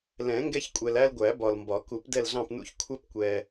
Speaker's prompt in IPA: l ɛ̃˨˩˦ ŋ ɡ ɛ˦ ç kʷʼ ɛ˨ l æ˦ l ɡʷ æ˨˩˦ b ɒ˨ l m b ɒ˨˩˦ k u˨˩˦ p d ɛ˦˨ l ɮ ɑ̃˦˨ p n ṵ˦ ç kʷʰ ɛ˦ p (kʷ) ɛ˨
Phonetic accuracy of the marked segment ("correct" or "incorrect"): correct